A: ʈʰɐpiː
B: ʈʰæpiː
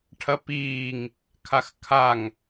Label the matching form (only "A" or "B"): A